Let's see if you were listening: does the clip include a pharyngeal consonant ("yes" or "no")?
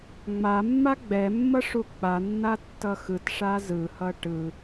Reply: no